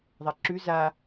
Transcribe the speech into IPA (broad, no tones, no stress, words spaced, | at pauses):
ðˤɛǁʉ za